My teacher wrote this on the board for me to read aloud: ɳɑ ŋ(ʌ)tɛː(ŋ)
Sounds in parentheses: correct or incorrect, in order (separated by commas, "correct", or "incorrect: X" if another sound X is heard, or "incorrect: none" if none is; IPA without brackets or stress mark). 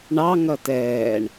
correct, incorrect: ɳ